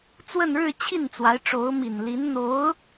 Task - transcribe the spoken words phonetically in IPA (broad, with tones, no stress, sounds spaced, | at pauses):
t͡s w ə˥˧ n ɻ ɻ̩˥˧ t͡ɕʰ i˥˩ n t͡s w a˧˥ ɪ̯ ʈ͡ʂ o˧˥ ʊ̯ m i˨˩ n l i˧˥ n n̪ o˧˥ ʊ̯